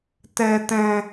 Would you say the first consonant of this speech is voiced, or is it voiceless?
voiceless